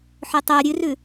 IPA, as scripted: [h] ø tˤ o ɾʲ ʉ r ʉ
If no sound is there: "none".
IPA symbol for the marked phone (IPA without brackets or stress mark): ħ